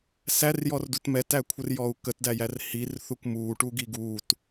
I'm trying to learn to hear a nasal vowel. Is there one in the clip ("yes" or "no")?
no